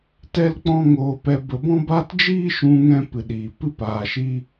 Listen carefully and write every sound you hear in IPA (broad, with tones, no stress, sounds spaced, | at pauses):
t ɛ˦ l k͡p ɔ̃˦ ŋ oː˧ p ɛ˧ b ə˧ b ɔ̃˦ b a˦ t d͡ʒ iː˦ ʃ ũ˧ ŋ ɛ̃˧ p ɨ˨ ɗ iː˨ p ɨ˧ p aː˨ ʃ i˧